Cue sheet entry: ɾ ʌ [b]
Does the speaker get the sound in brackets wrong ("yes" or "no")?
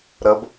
no